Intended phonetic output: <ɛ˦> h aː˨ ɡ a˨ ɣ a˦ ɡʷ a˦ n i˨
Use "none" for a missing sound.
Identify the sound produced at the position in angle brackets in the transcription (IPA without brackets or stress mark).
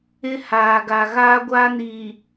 ɪ˦